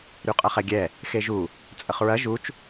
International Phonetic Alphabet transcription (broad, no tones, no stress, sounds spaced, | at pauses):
ɾ y qʼ ɐ χ ɛ ɡʲ ɛ | x e ʒ u | t͡sʼ ə χ ɹ ɐ ʒ u t͡ʃ